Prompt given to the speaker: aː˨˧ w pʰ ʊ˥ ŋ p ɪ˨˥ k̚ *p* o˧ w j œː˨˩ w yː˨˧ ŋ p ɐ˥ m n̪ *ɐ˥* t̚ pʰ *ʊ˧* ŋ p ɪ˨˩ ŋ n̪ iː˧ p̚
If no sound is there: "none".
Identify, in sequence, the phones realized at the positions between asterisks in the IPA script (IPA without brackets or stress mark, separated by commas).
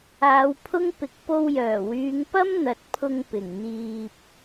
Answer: p, ɐ˨, ʊ˧